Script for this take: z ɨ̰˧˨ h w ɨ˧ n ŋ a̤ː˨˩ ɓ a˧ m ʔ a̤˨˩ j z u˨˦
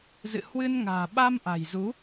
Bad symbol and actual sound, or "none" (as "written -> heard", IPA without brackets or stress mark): none